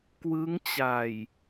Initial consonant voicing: voiceless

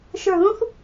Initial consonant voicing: voiceless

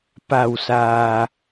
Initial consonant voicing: voiceless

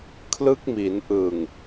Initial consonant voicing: voiceless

